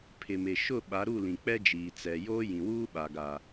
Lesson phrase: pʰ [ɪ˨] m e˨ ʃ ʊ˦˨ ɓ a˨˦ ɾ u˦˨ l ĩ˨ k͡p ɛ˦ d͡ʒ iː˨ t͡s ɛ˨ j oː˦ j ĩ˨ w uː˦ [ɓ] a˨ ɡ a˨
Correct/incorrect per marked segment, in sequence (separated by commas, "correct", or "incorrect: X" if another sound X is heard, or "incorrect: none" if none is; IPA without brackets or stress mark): correct, correct